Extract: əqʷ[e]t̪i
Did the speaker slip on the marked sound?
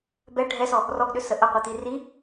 yes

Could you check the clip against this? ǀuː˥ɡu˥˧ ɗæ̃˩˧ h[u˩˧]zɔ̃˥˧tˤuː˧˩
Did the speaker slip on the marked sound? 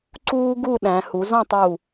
no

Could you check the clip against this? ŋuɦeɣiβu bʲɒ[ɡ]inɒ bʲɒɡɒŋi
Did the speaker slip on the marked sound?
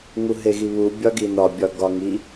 no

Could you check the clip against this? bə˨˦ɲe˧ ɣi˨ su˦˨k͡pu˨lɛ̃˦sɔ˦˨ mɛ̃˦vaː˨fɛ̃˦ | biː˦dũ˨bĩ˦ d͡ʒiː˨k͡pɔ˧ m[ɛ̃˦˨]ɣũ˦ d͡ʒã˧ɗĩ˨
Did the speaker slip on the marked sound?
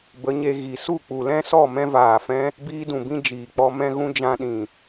yes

